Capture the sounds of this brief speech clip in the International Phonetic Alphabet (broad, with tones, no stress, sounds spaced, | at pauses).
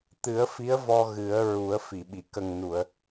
t̪ ɨ˨˩˦ ə̯ f i˧˥ ə̯ v ɔ˧ ɣ ɨ˨˩˦ ə̯ ɹ u˨˩˦ ə̯ f i˨˩˨ ɓ i˨˩˨ k ə˨˩ ŋ n u˨˩˨ ə̯